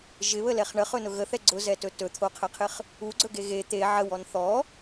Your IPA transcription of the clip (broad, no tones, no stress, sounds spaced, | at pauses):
ʒ ɪ β ə l ɛ χ ɳ ə χ ɵ n ʊ ɣ ə θ ɛ ɡ͡ǀ ʊ z ɛ t ɵ t ɵ t̪ʰ o qʰ ɛ qʰ ɪ χ | u ɡ͡ǀ ɵ ɡ e ɣ e t̪ e ʕ ə w ɔ n θ ɔ